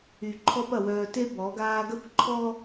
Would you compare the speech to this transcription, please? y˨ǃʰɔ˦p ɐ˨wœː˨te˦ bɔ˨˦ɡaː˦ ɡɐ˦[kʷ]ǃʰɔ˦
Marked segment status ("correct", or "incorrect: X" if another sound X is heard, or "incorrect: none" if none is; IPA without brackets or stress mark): correct